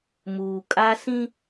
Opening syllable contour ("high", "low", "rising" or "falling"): low